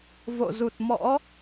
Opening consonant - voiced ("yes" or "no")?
yes